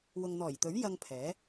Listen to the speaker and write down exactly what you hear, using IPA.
w ʊ˨ ŋ n̪ ɔː˨˩ j t̪ ɵ˨˥ ɥ j ɐ˧ ŋ pʰ ɛː˨˥

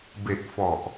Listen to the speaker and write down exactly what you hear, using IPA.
b e˨˩ k̚ f ɔ˨˩ ʔ

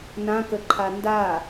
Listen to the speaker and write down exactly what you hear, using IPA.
n ã k ə ǃʰ a n d a

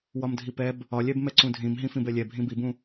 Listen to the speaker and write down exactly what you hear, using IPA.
w ɒ m dʱ i p ɛ b | ɒ lʲ ɛ b m ɛ ǀ ũ dʱ ĩ m ɦ ĩ f ĩ b ɛ lʲ ɛ bʱ ĩ b i b ũ

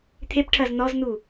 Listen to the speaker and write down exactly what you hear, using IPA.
t̪ʰ e p ʈʰ ɐ z n ɔ z n u

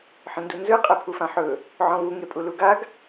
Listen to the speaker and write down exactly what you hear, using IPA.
ħ ə̃ n d u n z ɯ qʼ e pʰ u f ã ħ ɵ | ʕ ɔ̃ v u ŋ e pʼ u l u ɡ a ɡ

